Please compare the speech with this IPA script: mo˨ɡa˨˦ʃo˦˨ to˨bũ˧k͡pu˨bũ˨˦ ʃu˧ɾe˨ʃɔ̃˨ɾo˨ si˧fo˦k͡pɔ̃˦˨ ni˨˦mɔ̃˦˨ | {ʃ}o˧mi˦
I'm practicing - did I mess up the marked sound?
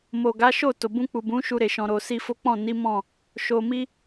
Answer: no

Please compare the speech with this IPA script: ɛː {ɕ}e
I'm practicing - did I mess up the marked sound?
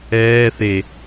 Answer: yes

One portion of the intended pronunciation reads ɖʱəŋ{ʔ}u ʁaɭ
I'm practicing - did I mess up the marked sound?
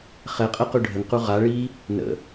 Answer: yes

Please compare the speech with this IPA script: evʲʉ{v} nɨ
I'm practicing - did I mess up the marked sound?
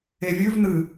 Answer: no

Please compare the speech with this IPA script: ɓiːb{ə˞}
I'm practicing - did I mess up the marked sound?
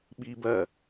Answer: yes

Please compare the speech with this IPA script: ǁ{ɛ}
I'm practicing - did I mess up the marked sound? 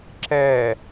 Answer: no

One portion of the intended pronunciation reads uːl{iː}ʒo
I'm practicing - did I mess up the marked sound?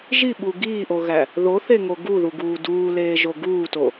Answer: yes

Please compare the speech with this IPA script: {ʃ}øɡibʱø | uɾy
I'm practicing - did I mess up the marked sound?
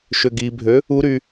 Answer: no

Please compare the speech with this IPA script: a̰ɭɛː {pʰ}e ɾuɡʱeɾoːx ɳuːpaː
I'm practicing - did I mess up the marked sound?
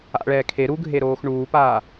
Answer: yes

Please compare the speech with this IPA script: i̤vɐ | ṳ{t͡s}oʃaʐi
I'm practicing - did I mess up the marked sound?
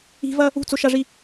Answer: no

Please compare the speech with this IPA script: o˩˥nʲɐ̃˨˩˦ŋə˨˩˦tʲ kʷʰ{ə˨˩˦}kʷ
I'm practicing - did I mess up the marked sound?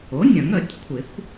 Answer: yes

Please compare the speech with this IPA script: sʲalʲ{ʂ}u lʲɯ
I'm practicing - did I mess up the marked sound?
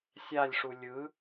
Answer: no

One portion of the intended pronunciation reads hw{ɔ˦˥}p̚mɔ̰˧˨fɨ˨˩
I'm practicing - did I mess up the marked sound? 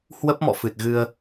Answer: yes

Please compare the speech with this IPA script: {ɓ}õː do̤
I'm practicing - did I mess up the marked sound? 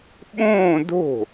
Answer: no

